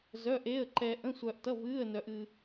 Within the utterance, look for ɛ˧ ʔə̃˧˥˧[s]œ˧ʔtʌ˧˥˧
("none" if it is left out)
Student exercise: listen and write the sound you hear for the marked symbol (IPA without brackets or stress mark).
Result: sʷ